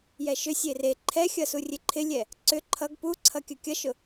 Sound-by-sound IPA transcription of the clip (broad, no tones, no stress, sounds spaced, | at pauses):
j ɛ ʃ ʏ sʲ e r e ǃʰ ɛ xʲ ʌ s u rʲ e ǃʰ ɪ lʲ ɛ | ǀ ʏ ǃʰ ʌ ɡ p u ǀʰ ʌ kʲ ʊ kʲ ʌ ʃ ʊ